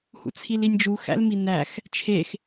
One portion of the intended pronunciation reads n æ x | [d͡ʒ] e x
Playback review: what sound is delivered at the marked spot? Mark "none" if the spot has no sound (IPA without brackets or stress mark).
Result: t͡ʃʰ